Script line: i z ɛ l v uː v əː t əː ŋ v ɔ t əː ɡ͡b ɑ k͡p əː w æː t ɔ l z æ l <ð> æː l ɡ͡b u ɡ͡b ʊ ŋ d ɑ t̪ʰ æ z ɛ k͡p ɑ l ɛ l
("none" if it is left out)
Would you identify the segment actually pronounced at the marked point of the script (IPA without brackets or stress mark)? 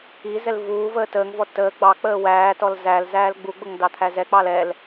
z